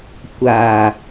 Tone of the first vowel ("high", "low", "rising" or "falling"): low